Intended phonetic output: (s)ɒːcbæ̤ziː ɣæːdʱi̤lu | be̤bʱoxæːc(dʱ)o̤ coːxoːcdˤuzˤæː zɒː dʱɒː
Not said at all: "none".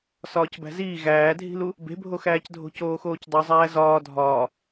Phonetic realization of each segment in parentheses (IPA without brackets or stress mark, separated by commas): s, dʱ